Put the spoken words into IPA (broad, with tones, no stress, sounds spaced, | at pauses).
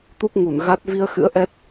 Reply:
t̪ u˦˥ k̚ ŋ u˧˩ n ɣ a˦˥ t̚ v i˧ ə̯ x ɨ̰˧˥ ə̯ ʔ ɛ˦˥ t̚